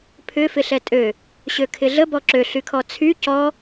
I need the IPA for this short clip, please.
pʰʏ fɪɬɛtʼø | ɕøkʰɪɮə bɔǁø ɬykʰɔt͡sʰy cɔ

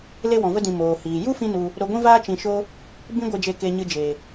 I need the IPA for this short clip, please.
le˦wɔ̃˨və˦dĩ˨ moː˨hiː˨ ju˦fĩ˧ nu˧ | ɾo˧ɡʷĩ˦vaː˦ t͡ʃĩ˧ʃo˦ | bĩ˦ɡʷe˧d͡ʒe˧ ke˧ɲɨ˧d͡ʒe˨

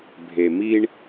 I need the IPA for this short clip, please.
bʱe˨mi˦ɳ

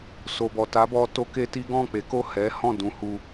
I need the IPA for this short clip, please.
so˨bɔ˨ ta˨˦bɔ˧ to˦ke˦ti˦ ɡɔ̃˦˨k͡pe˨˦ko˦˨ hɛ˨˦hɔ̃˦˨ dũ˧hu˧

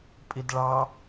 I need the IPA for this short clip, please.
pʼidɭɑ

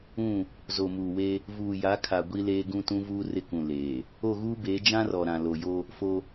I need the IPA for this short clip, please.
ũ˦˨ | zo˨muː˨we˦ | vuː˨ja˨˦kʰa˨ ɡʷi˦leː˦ ɡũ˦tũ˦vuː˦ rɪ˦kũ˨ leː˨ | o˦˨ɣuː˦beː˨˦ d͡ʒã˦rɔ˨ɾã˨ lo˨jo˦ | fo˦

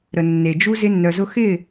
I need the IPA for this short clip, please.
ɾə˨ nːe˨d͡ʒu˦ zɪ˧nːœ˨zʊ˧ xɪ˦˨

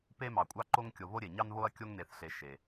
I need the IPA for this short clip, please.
pe˦mɑ˩kʷʼɑ˦ ǃo˦ŋkʲo˨ βo˥ɾʲe˩ ɲɑ˦nβo˦ɐ̯ kʲo˥ŋne˨θɬe˨ ʃe˩

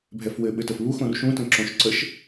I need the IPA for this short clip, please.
bʱɛfwɘɓɘtəf βuxõr ʃũtə̃ ǁõʃ ǀəʃ

